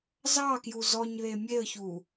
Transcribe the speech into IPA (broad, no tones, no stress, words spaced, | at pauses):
zɑkju zɔɲðe mʲeə̯çu